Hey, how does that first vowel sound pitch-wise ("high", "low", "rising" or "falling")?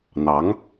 rising